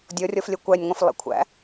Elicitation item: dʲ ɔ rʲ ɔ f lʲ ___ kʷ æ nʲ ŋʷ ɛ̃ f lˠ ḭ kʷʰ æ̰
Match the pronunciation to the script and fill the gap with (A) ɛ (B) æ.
A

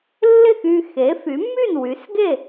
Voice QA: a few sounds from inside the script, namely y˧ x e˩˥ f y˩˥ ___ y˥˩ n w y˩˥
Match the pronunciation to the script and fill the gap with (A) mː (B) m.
A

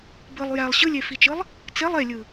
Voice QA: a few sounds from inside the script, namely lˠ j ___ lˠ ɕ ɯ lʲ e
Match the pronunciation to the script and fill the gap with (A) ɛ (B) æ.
B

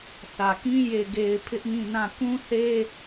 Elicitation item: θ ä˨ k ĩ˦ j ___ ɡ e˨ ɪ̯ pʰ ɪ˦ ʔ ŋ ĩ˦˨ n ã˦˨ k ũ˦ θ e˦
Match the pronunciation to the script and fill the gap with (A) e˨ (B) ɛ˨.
A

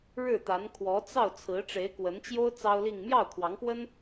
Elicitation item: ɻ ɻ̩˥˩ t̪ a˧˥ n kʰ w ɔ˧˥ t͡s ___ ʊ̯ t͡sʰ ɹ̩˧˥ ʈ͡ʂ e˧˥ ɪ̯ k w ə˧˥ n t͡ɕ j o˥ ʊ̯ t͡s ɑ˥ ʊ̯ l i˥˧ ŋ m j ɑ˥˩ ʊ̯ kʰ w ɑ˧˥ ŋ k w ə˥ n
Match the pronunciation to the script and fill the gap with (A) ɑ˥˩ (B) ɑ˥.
A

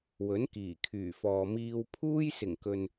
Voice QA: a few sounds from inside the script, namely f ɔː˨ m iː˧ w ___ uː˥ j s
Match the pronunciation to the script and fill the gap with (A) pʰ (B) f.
A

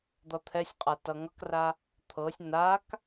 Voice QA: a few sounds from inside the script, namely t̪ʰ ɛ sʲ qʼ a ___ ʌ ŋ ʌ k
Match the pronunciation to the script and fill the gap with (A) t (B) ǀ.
A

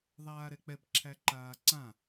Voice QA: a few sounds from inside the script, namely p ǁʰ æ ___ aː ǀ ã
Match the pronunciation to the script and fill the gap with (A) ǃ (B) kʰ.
A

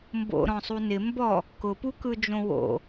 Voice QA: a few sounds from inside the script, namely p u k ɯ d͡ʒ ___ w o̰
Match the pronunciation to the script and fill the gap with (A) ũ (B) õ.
B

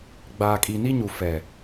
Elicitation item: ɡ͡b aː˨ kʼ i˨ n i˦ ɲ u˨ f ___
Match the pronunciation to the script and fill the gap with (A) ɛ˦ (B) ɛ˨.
B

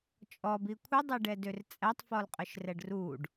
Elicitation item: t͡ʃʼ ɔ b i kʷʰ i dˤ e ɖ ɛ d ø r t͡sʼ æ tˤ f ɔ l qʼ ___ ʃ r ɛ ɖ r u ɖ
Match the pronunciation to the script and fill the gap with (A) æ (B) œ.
B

